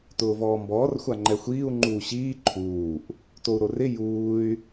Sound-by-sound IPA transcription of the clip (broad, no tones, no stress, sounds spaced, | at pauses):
t ʊː v ɔː m b ɔː r xʷ a ŋ͡ǃ ɛ xʷ iː u̯ ŋ͡ǃ uː ɕ iː ǃʰ uː ʔ | t o u̯ ɾ o r ɪ j uː y̯